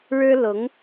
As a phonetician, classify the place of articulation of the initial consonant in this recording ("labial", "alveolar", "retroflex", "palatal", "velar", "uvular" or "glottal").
retroflex